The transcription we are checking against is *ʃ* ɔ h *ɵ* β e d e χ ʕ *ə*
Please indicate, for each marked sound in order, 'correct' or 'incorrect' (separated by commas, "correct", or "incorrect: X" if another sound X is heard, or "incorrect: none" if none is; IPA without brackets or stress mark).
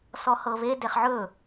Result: incorrect: s, incorrect: ɤ, incorrect: ɵ